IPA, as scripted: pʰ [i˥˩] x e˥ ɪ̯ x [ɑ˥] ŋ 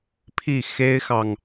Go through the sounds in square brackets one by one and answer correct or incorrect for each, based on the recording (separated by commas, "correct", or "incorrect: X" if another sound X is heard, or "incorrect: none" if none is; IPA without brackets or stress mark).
correct, incorrect: ɑ˨